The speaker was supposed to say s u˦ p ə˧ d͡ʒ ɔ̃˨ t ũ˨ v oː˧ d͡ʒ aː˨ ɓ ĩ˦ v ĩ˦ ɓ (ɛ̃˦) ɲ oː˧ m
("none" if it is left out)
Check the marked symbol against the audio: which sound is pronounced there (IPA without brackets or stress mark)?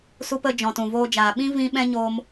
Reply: ɛ̃˦